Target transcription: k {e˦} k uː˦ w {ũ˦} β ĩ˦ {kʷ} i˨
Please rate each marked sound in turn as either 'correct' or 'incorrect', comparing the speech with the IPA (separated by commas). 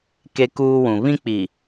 correct, incorrect, incorrect